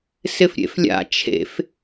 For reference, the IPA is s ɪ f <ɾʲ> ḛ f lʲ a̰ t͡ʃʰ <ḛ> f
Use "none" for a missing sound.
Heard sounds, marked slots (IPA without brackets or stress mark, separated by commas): ɾʲ, ḛ